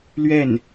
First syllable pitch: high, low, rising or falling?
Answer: falling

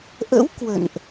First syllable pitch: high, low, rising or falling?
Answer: rising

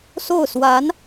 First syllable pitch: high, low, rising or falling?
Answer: falling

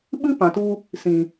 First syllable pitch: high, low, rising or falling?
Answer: high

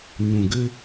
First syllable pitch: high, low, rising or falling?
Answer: low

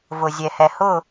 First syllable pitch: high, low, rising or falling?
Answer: low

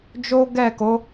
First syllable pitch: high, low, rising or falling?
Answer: high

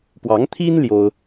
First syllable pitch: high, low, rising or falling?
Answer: rising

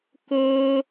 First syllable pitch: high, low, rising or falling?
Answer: high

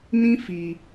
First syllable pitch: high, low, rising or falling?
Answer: high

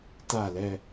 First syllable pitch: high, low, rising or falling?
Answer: falling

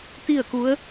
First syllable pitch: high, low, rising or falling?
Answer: falling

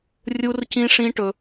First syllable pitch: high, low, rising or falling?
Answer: high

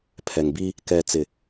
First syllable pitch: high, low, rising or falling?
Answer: low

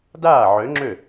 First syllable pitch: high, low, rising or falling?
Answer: falling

